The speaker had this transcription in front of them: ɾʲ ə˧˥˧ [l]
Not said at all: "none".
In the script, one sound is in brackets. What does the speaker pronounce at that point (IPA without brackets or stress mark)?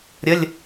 lʲ